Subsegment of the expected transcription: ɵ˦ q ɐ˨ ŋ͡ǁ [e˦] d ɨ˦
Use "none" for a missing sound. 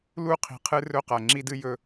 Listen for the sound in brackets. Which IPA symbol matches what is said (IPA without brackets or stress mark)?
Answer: i˦